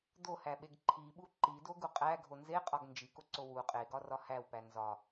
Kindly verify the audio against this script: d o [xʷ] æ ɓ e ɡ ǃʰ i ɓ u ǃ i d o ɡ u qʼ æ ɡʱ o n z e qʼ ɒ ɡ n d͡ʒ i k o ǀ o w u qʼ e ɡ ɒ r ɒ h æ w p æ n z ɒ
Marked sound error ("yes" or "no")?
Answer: yes